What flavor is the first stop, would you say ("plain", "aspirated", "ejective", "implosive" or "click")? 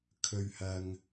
aspirated